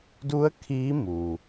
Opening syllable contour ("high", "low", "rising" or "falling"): rising